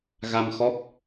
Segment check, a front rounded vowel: absent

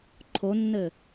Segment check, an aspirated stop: present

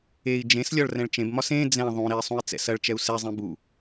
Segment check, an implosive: absent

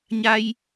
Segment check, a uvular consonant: absent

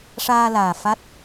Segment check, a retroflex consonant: present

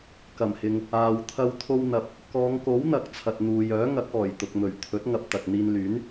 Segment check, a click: absent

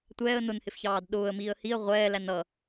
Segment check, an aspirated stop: absent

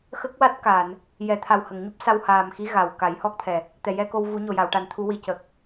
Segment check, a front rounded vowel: absent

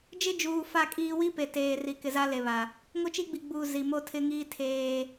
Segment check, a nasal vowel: absent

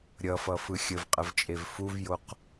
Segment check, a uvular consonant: present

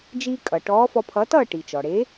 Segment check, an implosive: absent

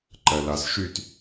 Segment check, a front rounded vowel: present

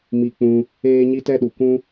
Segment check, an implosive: present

